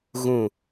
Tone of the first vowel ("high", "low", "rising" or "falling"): low